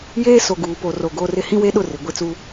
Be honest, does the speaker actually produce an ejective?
no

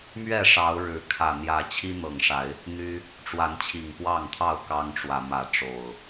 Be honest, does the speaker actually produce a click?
no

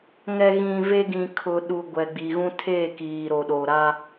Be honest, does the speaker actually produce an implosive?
yes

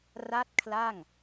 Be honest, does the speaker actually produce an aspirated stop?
yes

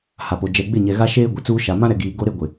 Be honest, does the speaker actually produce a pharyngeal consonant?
no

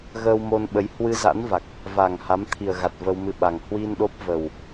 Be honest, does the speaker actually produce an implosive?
yes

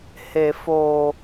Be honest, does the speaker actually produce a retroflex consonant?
no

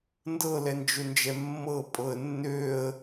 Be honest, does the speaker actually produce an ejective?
yes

